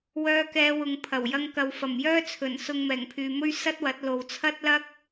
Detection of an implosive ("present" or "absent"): absent